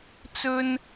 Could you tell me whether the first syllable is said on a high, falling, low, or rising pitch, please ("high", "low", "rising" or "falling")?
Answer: high